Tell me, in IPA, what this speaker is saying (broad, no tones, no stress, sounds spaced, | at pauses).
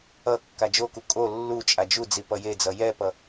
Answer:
ʌ kː a d͡ʒ o k u kʼ o lː u t͡ʃʼ a d͡ʒ u d͡z i p ʌ j e d͡z ʌ j ɛ p ʌ